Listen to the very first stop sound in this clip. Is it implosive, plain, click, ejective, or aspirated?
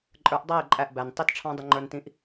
click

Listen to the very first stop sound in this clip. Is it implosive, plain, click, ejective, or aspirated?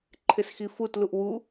click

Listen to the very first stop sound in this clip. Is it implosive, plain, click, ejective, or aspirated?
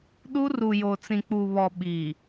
implosive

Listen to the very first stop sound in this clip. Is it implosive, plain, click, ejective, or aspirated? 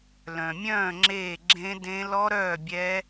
click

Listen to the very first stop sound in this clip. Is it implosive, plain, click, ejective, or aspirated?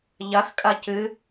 ejective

